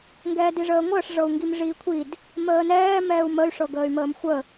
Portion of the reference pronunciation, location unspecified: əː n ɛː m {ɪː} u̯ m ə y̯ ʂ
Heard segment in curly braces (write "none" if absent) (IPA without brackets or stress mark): ɛː